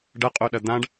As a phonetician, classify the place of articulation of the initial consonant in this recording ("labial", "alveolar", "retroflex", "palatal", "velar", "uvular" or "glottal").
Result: retroflex